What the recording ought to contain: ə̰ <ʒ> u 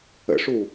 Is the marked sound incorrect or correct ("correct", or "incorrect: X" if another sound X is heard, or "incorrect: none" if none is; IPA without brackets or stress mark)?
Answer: incorrect: ʂ